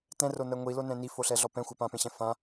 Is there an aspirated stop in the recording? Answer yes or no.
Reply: no